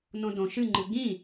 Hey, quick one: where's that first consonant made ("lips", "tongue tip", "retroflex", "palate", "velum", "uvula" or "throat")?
tongue tip